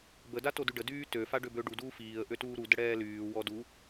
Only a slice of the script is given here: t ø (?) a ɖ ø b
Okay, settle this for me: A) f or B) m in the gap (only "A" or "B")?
A